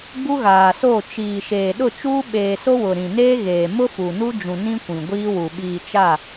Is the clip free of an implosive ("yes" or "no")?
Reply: no